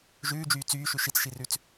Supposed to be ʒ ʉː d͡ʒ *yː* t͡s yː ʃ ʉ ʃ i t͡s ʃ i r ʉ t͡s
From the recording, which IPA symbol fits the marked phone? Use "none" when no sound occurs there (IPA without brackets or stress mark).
yː